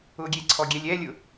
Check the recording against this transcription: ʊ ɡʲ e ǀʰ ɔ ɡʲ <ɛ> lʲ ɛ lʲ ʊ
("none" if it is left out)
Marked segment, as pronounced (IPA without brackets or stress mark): ɛ